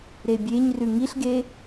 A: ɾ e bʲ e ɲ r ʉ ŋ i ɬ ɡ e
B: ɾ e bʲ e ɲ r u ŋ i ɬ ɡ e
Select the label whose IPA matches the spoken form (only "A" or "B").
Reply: A